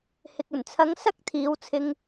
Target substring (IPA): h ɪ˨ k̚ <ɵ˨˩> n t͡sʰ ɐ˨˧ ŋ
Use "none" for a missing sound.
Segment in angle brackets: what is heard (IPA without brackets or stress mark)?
ɵ˨˩